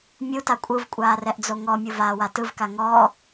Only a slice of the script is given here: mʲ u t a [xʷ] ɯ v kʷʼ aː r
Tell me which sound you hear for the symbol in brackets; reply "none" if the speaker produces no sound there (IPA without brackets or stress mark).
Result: kʷʼ